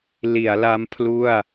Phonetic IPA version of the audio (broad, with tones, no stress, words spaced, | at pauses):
li˩˦a̯la˦˥m pʰlu˥˩a̯